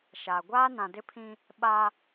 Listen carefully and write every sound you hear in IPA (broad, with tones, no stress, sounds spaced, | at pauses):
ʃ a˨ ɡʷ aː˦ n ã˨ d ɪ˦ pʰ ĩ˦ | ɓ a˦